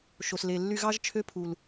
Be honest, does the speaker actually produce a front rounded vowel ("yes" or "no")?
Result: yes